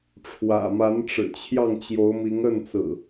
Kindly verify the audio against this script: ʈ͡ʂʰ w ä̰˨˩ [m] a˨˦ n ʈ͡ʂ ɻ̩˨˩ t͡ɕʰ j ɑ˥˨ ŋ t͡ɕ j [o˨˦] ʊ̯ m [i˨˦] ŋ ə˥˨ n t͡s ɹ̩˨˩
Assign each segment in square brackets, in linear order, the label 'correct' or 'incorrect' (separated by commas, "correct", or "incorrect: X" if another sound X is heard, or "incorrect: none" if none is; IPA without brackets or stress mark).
correct, correct, correct